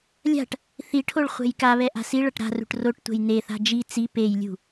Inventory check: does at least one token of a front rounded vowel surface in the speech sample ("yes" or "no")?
no